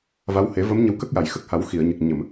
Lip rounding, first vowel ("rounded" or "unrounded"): unrounded